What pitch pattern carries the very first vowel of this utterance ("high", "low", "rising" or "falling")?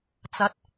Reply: rising